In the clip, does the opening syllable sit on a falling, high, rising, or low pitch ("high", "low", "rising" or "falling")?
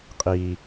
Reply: low